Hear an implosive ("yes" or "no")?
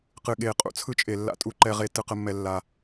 yes